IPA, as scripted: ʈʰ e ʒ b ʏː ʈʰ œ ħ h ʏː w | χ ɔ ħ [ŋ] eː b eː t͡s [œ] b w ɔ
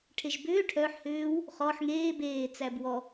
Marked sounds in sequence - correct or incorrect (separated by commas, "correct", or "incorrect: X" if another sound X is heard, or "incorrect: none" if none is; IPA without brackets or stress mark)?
correct, incorrect: æ